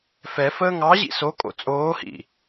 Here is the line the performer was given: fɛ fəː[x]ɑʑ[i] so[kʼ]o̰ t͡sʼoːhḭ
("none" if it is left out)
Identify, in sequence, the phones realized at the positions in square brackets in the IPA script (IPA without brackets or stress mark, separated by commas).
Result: ŋ, ḭ, kʼ